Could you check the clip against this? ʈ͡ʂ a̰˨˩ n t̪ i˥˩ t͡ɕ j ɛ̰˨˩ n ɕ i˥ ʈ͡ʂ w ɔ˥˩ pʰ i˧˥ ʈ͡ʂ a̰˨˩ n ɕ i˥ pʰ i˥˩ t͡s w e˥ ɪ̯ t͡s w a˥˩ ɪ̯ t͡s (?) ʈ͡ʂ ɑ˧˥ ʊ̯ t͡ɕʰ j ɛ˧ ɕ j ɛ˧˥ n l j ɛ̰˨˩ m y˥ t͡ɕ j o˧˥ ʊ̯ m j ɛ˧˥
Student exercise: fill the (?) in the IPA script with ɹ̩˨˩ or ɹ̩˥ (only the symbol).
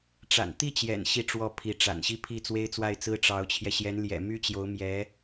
ɹ̩˥